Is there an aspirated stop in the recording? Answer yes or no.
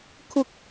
yes